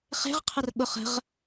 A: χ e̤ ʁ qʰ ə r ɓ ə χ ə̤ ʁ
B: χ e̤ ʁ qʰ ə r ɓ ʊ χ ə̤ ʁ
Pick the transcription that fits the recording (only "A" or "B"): B